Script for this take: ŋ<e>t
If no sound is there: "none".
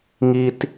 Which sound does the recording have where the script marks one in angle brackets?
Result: i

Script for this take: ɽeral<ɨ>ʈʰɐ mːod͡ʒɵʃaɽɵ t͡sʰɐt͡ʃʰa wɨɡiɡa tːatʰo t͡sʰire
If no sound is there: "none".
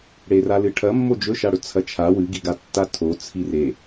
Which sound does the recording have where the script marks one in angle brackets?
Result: ɨ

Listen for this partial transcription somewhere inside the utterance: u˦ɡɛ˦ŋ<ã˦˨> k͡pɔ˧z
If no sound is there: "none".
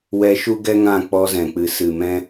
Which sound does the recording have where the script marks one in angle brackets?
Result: ã˦˨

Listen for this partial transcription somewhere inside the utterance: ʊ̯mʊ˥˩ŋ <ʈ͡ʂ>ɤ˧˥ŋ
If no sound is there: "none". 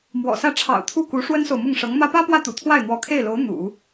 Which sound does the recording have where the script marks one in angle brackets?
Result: ʂ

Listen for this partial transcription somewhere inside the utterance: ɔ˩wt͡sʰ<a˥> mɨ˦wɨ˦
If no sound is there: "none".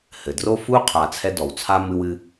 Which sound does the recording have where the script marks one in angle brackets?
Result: a˥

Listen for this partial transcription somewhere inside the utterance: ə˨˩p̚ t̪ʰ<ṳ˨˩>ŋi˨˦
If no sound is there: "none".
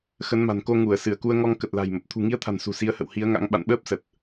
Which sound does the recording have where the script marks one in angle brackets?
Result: ṳ˨˩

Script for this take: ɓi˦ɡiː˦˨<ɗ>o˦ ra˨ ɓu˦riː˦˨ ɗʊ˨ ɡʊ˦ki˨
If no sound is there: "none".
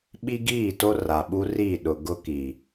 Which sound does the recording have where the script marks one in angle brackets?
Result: t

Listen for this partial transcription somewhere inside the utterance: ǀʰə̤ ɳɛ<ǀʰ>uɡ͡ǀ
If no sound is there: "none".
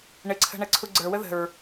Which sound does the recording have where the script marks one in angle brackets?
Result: ǀʰ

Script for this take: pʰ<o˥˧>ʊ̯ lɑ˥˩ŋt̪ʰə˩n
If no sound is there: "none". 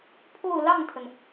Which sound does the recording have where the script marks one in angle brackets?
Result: o˥˧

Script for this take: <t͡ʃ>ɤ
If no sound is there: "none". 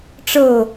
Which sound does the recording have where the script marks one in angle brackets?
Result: ʈ͡ʂ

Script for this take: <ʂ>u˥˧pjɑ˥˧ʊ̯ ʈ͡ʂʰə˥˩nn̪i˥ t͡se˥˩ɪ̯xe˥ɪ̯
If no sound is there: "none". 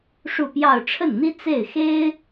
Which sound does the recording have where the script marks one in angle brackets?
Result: ʂ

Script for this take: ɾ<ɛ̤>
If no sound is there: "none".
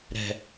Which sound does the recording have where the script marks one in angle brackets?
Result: ɛ̤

